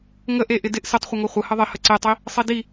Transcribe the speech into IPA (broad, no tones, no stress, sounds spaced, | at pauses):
ŋ ə ʔ e ʔ ɪ d ɪ ʔ s ɪ tˤ χʷ ə ŋ o χʷ ə h ə ðˤ ɪ h ə ǀ e tˤ i | sˤ i d i